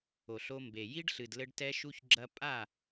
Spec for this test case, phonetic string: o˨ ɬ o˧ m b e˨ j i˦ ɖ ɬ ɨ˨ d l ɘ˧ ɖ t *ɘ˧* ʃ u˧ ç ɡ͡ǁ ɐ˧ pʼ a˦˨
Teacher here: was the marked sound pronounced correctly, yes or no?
no